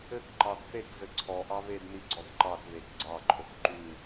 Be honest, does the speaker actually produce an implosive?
no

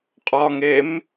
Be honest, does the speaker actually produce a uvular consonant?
yes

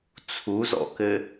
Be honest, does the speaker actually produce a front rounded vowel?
no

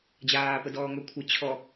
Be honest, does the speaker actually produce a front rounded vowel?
yes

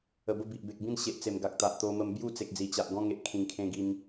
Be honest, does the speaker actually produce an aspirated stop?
yes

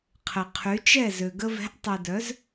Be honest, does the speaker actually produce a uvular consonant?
yes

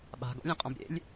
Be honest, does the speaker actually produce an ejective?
yes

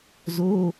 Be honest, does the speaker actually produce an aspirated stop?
no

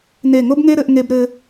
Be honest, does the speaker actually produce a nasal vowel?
no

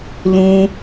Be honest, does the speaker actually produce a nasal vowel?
yes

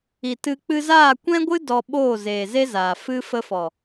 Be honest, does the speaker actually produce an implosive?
yes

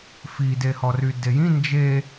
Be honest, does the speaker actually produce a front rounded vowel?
yes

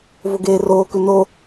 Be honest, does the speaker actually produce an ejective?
no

